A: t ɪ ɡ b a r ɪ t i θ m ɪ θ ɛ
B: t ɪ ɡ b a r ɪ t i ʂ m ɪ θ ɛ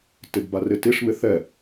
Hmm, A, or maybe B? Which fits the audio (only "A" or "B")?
B